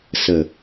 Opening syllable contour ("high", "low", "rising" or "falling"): low